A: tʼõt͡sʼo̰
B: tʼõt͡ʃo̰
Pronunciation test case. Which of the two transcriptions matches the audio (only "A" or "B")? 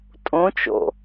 B